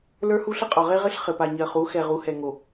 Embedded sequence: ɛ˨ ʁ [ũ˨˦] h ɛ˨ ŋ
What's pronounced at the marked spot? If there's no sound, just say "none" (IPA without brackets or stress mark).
u˨˦